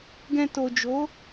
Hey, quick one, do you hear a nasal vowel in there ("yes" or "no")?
yes